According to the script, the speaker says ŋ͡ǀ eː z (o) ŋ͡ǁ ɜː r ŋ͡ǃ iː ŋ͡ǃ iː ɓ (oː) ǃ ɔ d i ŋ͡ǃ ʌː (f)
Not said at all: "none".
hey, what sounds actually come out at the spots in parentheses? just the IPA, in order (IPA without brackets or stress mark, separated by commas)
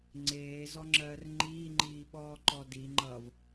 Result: ɔ, ɔː, v